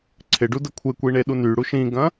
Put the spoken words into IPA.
ǀʰɪɖudə kʷʰekʷiɳeɗu nyɽu ʃĩɡɐ̃

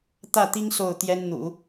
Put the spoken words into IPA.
t̪ä˥˩t̪i˥ŋ so˥˩ʊ̯t̪jɛ˥n n̪ṵ˨˩˦

